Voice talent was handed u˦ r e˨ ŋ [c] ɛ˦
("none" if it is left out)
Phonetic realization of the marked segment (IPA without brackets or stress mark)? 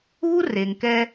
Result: k